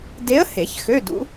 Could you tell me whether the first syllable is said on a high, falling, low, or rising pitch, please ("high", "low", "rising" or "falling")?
rising